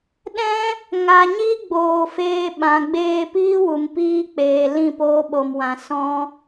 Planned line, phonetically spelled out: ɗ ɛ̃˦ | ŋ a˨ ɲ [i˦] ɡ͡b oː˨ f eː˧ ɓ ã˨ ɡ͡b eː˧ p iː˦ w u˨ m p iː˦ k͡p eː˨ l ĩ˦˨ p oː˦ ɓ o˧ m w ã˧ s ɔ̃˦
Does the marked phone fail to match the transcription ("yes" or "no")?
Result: no